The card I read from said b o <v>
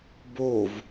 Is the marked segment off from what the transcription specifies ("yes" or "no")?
no